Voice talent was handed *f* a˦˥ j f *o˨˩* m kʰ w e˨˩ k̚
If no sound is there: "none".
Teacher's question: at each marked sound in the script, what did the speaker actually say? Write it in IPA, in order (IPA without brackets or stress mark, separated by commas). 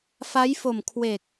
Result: f, o˨˩